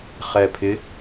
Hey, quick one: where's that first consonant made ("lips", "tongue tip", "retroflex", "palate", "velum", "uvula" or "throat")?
uvula